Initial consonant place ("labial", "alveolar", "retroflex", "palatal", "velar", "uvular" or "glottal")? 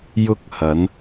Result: palatal